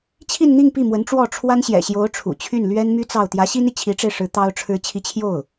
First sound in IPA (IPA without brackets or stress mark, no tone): t͡ɕʰ